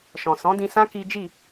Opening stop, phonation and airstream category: plain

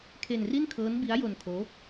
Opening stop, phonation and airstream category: aspirated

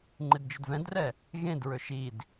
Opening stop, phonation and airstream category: click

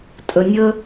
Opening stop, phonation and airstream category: ejective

